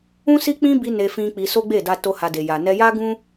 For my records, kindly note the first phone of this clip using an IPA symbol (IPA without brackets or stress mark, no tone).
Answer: ũ